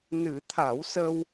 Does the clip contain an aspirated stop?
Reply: yes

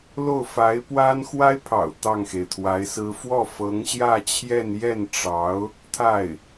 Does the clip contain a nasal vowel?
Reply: no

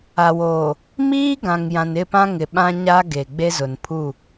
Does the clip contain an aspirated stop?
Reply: yes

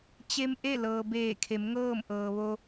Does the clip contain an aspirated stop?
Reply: yes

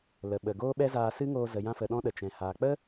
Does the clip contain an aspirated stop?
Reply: no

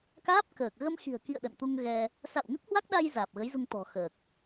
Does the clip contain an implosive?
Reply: yes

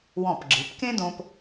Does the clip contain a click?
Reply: yes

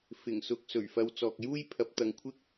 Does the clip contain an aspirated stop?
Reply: yes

